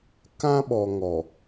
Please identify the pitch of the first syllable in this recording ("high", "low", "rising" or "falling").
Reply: high